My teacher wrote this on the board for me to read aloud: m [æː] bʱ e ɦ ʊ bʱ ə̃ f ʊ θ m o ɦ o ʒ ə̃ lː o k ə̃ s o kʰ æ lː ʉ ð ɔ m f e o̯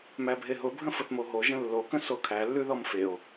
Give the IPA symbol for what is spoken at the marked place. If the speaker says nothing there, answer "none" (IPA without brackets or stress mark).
æ